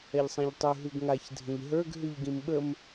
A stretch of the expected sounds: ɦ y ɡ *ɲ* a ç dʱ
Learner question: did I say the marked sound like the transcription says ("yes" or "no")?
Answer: no